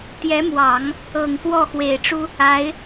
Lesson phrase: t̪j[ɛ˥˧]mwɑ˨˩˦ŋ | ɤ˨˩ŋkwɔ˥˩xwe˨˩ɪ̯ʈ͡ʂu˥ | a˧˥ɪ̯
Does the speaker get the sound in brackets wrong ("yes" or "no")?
yes